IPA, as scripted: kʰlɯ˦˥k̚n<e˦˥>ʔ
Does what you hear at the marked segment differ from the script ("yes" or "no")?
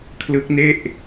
yes